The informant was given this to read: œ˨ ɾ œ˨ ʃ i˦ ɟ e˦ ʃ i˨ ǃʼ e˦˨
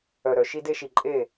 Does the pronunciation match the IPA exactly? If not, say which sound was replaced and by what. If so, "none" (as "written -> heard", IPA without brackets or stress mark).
ɟ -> d